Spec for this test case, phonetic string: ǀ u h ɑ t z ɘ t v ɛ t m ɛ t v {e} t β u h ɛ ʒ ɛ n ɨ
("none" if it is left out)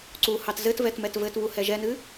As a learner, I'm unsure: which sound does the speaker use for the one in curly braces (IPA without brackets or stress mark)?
ɘ